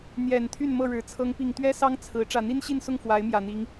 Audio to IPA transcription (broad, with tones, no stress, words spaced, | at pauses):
n̪jɛ˨˩n t̪ʰy˥˨nmɤ˥˨ɻɻ̩˨˦ t͡sʰɤ˨˦ŋpi˨˩ŋt̪ɥɛ˦sɑ˦ŋ t͡sʰɹ̩˨˦ ʈ͡ʂä˨˩n̪i˦nɕi˥˨nsʊ˥˨ŋ fwa˨˦ɪ̯mjä˨˩n̪i˨˦ŋ